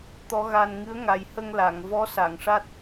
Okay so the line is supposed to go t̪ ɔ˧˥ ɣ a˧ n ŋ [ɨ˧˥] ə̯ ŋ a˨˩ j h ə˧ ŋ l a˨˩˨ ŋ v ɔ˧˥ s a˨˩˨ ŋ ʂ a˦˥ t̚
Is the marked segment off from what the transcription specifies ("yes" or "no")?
no